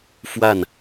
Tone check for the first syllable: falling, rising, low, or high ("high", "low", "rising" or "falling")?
falling